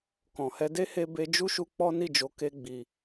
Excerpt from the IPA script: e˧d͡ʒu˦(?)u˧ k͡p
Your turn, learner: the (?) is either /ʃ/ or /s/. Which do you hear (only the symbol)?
ʃ